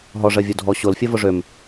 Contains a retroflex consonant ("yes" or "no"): yes